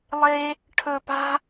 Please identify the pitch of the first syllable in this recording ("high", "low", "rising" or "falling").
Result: high